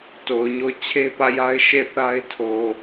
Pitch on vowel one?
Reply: low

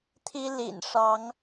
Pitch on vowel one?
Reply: high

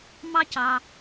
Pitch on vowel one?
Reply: high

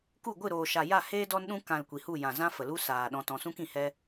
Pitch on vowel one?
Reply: falling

